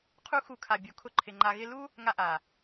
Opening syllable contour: high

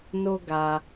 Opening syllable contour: high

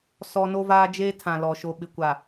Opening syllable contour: high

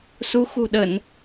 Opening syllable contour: rising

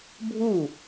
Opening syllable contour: falling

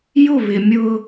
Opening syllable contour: falling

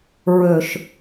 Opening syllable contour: low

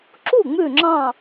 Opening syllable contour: falling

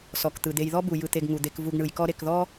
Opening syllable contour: low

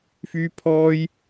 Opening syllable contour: high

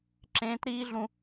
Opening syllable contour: high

